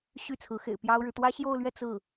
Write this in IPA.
ɕ y˥˩ t͡sʰ ɹ̩˧˥ x ḛ˨˩ ɪ̯ p j ɑ˥ ʊ̯ ɻ ɻ̩˨ t̪ w ä˥ ɕ j o˥˧ ʊ̯ l ɥ ɛ˥˧ t͡s ɹ̩˥˩

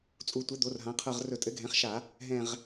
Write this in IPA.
t͡sʼ u˧˩˧ tʷ ɘ˩˥ d̪ o˩˥ r ɦ ã˩˥ qʰ ɤ˦˨ ʁ r ɵ˧˩˧ tʼ ɘ˩˥ ɡʱ ɛ̃˩˥ χ ʃ a˧˩˧ | ɦ ɛ̃˦˨ ʁ

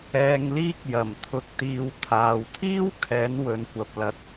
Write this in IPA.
ɛː˧ ŋ l iː˥ k̚ j ɐ˨˩ m t̪ʰ ʊ˧ k̚ t̪ iː˨˧ w t̪ʰ aː˨ w t̪ʰ iː˥ w kʰ ɛː˨˥ n w ɵ˨˧ n kʷ ɐ˨ p̚ l ɐ˨˥ t̚

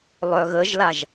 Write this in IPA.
lˠ œ ɣ ə ʒ l a ʒ

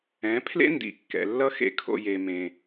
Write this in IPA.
ɛ̃˨˦ pʰ l ḛ˦ n d ḭ˨ kː ɛ̰˨ lː ʌ˦ x ḛ˧ kʰ o̰˧ j e˧ m ẽ˧

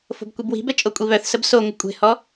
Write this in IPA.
f o̤ b kʷ i b w i̤ b ɛ t͡ʃʼ o kʷʼ i β œ θ s ə b s o ŋʷ ə kʷʼ e̤ h ɔ

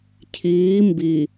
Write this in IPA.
cʰ iː m b i

